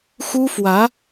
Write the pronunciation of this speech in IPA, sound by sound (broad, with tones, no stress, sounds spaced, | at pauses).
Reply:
x u˥ f w ä˧˥